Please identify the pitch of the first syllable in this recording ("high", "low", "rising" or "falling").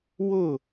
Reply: falling